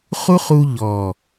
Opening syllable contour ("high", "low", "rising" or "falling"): high